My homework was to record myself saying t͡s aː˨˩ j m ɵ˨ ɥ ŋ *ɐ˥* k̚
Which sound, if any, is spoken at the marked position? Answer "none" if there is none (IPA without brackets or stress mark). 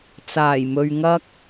ɐ˥